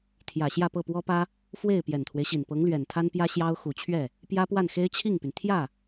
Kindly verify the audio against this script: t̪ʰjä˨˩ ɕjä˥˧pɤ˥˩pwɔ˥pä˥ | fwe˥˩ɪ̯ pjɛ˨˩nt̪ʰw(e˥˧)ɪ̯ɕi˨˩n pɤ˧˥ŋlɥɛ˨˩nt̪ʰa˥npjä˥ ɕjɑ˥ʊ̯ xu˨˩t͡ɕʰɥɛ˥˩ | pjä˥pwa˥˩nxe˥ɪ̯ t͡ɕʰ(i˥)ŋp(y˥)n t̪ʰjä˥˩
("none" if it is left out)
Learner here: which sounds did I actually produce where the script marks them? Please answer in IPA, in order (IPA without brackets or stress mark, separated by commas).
e˦, i˥˩, y˩